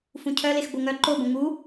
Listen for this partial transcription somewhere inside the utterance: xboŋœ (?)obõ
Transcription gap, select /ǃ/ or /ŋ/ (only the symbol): ǃ